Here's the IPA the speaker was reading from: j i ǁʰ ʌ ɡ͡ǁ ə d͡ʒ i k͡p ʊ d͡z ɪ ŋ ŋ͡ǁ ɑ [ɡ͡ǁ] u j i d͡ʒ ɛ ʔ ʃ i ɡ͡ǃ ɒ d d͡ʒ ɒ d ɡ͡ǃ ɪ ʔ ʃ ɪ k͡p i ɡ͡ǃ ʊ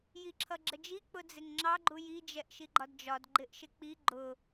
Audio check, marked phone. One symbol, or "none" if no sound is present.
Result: ɡ͡ǃ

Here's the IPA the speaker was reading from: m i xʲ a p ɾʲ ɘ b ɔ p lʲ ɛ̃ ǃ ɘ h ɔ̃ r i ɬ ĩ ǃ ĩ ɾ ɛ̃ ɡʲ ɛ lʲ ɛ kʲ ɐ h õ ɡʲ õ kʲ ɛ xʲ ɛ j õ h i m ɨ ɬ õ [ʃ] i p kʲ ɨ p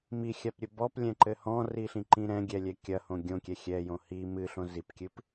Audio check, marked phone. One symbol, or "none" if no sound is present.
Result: z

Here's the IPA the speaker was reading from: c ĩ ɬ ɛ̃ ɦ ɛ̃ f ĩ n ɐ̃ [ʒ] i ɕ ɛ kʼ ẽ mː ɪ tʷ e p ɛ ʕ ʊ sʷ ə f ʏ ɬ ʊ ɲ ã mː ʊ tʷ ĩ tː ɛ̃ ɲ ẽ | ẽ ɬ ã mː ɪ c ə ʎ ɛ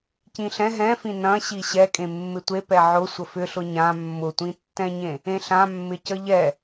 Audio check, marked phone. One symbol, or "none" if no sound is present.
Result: ɕ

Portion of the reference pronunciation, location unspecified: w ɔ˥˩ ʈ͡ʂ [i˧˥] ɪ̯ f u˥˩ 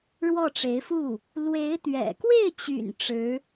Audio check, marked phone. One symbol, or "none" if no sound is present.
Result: e˧˥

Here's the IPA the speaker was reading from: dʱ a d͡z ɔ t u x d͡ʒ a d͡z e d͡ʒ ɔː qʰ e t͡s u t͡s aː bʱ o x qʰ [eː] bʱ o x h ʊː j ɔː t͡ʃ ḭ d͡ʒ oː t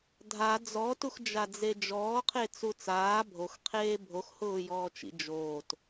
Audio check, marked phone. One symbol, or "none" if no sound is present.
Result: eː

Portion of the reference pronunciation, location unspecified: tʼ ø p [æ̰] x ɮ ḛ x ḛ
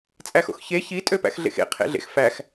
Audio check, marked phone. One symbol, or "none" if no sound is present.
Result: æ̰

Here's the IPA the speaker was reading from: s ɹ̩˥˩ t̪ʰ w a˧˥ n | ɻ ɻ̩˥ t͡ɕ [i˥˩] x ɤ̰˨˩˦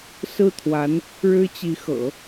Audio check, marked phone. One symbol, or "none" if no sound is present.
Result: i˧˥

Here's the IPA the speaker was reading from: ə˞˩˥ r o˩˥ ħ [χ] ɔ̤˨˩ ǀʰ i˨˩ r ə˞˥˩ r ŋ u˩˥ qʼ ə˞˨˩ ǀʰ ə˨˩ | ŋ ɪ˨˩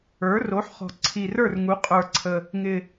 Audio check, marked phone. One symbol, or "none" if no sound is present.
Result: χ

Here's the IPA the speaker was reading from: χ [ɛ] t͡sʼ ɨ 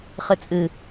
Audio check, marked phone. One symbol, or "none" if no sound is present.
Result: ɨ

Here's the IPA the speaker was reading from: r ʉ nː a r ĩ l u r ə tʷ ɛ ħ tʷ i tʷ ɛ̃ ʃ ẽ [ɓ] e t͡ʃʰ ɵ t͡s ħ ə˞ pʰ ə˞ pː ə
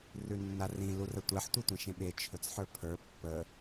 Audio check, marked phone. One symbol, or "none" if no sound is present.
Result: ɓ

